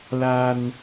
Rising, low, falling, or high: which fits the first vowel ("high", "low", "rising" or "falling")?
high